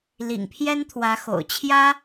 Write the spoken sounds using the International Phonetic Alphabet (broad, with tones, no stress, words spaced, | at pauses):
lḭ˨˩ŋpʰjɛ˥nt̪ʰwä˧˥ xo̰˨˩ʊ̯t͡ɕʰjä˥